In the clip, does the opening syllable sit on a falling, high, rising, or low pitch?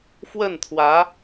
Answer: falling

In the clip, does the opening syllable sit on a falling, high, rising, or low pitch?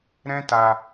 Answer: high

